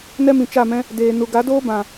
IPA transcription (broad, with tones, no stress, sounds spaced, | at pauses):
n ɛ˦ m ĩ˨ t͡ʃ a˦˨ m ɛ̃˦ | d eː˨ n u˨ ɡ a˨˦ d oː˦ b ã˨